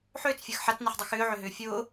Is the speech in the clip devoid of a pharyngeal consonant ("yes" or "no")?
no